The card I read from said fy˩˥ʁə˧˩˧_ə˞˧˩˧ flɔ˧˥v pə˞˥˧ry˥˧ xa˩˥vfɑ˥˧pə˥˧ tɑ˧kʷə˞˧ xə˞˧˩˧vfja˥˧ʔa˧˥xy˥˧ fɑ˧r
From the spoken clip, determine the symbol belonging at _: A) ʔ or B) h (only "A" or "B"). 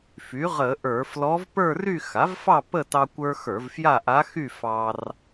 A